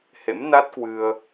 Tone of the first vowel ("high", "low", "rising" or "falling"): rising